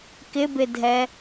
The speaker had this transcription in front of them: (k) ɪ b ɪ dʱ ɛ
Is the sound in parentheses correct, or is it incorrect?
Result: correct